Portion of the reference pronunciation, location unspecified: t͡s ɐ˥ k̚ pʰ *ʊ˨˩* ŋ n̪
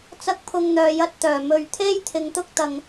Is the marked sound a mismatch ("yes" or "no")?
yes